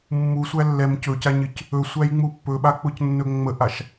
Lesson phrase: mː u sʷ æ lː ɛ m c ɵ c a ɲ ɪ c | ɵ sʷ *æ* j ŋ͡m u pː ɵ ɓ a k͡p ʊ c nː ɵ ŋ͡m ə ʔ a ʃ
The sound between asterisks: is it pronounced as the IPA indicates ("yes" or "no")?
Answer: yes